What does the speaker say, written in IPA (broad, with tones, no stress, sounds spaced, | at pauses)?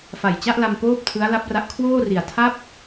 f a˨˩ j t͡ɕ a˥˩ ʔ l a˧ m p oː˥˩ p̚ tʰ ɯ˦˥ a̯ l a˦˥ p̚ r a˦˥ ʔ kʰ w oː˥˩ r i˨˩ a̯ tʰ a˥˩ p̚